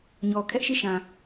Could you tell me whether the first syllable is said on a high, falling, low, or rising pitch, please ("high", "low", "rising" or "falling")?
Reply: low